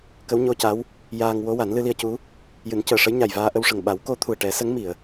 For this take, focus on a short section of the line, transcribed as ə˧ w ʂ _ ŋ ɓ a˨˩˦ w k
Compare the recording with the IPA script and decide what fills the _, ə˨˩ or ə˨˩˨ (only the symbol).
ə˨˩